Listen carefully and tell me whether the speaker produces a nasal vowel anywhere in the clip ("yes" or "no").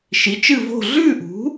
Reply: no